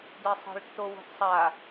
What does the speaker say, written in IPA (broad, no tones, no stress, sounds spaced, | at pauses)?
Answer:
d ɛ sˤ ɛ̤ ɭ tː o w o̤ d sˤ a